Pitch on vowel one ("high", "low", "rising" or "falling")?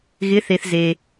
rising